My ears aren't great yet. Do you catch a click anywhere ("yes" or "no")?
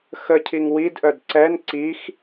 yes